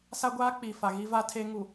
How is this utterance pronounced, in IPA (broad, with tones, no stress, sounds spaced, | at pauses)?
s a˦ ɡʷ aː˦ k͡p i˨ f a˨ ɣ i˦ v a˦ tʰ e˦ ŋ u˨